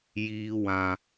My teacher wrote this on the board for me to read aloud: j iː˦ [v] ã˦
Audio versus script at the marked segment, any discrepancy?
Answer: yes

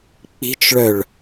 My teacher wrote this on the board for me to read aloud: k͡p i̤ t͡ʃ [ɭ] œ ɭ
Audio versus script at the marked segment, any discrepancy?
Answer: no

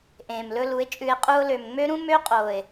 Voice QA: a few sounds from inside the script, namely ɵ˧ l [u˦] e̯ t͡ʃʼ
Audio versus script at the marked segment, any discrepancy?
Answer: yes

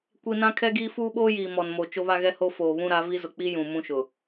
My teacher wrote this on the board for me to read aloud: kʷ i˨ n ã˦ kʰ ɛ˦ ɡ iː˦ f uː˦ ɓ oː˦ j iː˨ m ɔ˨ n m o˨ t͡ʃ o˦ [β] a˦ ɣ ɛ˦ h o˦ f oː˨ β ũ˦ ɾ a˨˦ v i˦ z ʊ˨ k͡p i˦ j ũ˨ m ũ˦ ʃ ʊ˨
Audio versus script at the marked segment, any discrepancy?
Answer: no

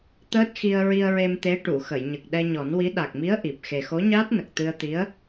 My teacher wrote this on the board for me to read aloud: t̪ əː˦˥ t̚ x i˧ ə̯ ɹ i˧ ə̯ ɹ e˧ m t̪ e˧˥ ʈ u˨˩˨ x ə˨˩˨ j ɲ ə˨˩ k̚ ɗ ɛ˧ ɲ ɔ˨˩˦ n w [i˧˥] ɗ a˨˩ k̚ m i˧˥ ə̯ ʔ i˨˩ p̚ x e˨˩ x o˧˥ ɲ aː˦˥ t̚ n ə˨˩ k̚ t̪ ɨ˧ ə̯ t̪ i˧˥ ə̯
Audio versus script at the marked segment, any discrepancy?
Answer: no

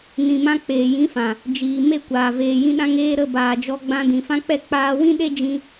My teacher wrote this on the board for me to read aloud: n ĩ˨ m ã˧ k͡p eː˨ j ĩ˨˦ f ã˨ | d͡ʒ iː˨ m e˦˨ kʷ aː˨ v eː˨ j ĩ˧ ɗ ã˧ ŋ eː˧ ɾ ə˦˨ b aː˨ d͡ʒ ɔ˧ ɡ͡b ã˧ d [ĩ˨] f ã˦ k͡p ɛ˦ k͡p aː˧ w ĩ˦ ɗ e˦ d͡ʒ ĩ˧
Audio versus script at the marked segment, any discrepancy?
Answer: no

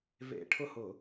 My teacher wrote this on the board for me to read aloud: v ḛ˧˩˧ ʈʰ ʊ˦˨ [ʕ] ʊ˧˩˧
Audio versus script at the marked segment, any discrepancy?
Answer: yes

